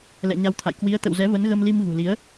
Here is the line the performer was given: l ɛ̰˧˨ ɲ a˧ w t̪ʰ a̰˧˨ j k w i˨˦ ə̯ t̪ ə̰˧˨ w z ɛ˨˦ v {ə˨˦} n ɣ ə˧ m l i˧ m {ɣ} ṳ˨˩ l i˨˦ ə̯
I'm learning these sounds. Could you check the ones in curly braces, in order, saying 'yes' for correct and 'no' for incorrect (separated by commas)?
yes, yes